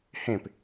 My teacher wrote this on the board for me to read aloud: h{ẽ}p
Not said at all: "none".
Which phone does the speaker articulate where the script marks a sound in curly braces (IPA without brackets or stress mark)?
ẽ